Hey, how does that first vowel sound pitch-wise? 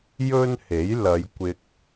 high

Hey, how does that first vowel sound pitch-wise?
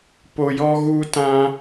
high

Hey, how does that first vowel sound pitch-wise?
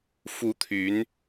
rising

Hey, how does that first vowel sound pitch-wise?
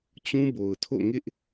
high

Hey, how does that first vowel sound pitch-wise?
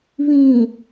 low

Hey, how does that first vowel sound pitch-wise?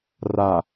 low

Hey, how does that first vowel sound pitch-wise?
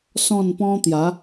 falling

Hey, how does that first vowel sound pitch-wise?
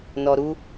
low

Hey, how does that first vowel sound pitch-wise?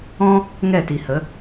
high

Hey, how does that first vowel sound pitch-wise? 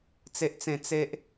high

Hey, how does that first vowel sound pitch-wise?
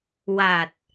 low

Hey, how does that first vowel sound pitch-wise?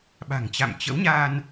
low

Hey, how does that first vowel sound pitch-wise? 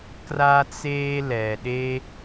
high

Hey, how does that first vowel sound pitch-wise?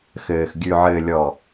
low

